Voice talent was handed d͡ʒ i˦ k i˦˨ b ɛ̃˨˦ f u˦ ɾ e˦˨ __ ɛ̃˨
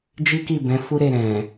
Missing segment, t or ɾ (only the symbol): ɾ